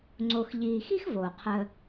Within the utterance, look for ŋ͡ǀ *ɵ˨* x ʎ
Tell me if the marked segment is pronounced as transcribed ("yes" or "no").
no